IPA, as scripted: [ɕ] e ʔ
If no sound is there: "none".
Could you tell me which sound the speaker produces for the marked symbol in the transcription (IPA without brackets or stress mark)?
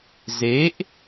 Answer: z